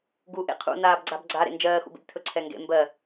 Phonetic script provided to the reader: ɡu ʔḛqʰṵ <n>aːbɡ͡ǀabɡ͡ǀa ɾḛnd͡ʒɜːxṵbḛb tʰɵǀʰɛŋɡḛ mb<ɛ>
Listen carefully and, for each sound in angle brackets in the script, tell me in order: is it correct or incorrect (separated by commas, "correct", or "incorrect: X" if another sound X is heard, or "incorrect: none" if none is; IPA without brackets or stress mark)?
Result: correct, incorrect: ɜ